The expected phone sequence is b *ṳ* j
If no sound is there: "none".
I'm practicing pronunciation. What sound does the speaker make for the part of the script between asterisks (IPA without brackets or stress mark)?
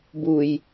u